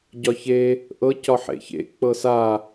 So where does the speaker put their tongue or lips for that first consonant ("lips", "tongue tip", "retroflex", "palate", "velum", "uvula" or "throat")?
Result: palate